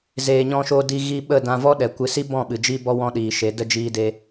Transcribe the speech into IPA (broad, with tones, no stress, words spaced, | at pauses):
zeː˨ɲɔ̃˧ʃo˧ di˧ɣi˧ ɓə˦˨ dã˧vɔ˦ ɗɛ˨kʷɨ˨si˦bɔ̃˦˨ ɓɨ˨d͡ʒi˦bɔ˦ wɔ̃˦ɗiː˨ʃe˨˦ də˦d͡ʒiː˦de˦